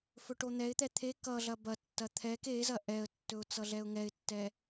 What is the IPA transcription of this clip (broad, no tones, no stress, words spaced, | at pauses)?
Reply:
fɵʈon̪ɛɪ̯t̪ɛ t̪ʰe kʌ ɮɐbɐtːɐ t̪ʰɛk ezɐ ʔɛə̯tːɵʊ̯ t͡sʌɮɛʊ̯ŋɛɪ̯tːɛ